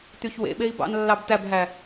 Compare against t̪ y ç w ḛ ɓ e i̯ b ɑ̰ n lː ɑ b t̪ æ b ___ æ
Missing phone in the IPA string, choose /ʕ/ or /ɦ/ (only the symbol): ɦ